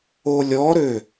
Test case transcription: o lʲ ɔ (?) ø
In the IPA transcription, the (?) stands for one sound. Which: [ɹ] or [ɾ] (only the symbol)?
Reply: ɾ